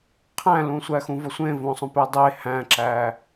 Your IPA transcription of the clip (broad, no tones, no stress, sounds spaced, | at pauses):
qʰ æ̃ l ũ sʷ æ x ũ v ɒ sʷ ẽ v õ sˤ õ p e dˤ e h æ̃ ǁ æ